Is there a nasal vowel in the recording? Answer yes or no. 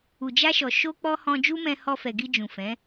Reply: yes